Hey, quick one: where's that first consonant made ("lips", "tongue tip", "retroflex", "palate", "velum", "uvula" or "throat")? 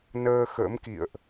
tongue tip